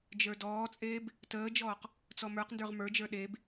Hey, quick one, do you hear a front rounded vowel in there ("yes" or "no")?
no